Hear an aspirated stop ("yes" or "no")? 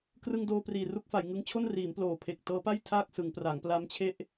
yes